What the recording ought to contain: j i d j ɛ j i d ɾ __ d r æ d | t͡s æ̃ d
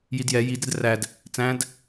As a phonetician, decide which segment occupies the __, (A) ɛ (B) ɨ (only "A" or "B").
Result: A